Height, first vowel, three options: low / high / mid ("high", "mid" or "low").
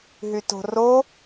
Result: high